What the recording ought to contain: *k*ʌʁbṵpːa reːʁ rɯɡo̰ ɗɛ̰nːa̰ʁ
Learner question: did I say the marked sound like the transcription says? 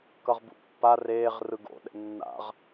yes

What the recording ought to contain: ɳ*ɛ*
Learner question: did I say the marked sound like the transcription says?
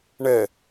yes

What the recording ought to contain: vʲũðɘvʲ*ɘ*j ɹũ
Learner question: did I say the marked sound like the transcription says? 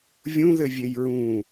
no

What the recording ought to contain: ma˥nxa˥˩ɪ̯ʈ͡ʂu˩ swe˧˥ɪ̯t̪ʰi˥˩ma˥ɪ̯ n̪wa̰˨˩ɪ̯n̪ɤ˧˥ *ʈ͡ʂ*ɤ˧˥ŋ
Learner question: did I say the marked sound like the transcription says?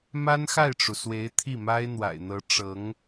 yes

